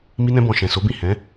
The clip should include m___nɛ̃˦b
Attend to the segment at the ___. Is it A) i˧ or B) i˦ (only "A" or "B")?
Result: B